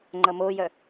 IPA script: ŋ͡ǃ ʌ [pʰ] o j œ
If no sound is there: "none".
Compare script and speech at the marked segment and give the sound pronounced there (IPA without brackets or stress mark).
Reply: m